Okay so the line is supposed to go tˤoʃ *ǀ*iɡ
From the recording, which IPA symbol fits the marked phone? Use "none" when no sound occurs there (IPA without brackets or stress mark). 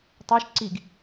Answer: ǀ